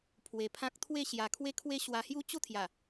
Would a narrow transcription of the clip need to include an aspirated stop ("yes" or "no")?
yes